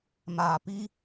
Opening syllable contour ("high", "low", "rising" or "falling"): low